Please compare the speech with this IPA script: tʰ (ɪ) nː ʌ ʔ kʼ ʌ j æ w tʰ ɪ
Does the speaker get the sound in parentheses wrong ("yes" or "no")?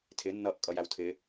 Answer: no